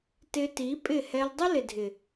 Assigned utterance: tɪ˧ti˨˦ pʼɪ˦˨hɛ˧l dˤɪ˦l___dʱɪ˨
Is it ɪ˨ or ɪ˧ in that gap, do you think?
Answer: ɪ˨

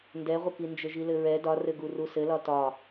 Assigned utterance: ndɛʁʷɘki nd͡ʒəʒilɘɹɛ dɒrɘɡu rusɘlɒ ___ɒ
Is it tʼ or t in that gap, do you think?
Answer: t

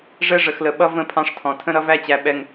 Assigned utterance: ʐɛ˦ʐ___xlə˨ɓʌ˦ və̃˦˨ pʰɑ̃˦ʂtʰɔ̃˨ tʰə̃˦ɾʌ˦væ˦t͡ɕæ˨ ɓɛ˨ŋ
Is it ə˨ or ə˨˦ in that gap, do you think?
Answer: ə˨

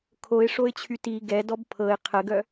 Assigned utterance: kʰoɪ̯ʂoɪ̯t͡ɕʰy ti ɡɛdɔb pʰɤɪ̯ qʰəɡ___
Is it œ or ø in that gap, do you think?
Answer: œ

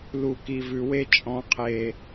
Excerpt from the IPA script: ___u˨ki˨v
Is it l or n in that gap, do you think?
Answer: l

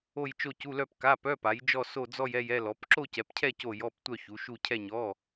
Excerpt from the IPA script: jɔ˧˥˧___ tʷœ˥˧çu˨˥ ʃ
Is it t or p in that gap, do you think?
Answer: p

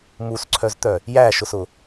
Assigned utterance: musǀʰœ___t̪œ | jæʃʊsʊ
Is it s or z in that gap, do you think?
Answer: z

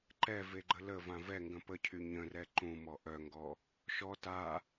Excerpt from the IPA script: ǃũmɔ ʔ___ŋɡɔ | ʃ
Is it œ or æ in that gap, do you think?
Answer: œ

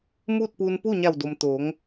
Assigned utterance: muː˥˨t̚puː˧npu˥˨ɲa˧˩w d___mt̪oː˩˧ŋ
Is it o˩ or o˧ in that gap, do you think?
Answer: o˩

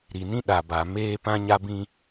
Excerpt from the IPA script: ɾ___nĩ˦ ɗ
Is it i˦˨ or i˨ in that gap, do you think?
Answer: i˨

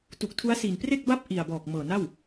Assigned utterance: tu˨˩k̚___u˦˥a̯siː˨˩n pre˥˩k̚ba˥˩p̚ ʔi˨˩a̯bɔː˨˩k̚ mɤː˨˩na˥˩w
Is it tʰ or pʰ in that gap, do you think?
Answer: tʰ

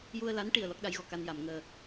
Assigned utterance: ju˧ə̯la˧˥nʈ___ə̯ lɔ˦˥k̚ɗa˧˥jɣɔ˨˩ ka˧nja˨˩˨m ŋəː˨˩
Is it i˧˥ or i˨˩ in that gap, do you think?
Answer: i˨˩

